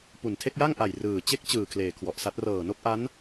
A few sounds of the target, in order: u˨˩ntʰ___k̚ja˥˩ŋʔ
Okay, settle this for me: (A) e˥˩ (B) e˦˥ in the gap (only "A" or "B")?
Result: A